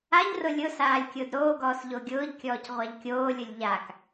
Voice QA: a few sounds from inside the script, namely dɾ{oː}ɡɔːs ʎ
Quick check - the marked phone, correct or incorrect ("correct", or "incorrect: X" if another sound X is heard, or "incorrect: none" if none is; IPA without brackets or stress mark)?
correct